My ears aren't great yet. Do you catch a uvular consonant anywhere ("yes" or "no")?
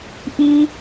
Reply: no